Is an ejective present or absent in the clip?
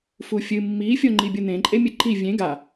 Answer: present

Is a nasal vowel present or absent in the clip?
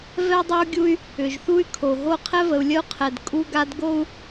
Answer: absent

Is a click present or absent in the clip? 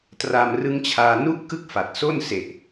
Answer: absent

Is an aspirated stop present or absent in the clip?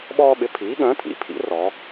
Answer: present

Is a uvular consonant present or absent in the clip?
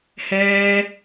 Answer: absent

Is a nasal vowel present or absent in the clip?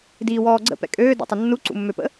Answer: absent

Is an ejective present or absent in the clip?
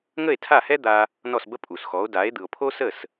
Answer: present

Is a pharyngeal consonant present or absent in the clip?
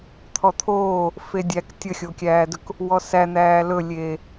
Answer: absent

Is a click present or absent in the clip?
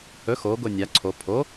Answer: present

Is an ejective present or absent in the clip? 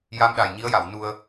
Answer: absent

